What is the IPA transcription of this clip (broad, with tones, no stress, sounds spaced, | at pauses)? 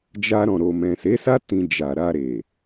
d͡ʒ a˧ ɾ ɔ̃˨ ɾ o˨ m ɛ̃˨ s e˨˦ s a˦ t ĩ˧ d͡ʒ a˨ ɾ a˧ ɾ e˨